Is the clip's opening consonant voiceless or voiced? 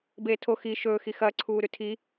voiced